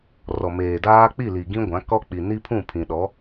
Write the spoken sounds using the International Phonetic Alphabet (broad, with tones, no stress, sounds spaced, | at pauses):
r ɔ˨ m eː˨ d aː˦ k͡p i˦˨ l i˨ ɡ ĩ˦ ɡʷ ã˨˦ k ɔ˦ k͡p i˨ n i˦ pʰ ũ˦˨ pʰ ĩ˨ ɗ ɔ˨˦